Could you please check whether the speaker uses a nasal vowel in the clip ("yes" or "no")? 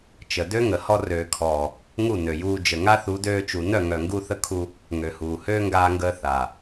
no